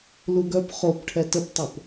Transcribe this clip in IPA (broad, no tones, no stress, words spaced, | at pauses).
luɡœp χop ʈʰɛtəptˤop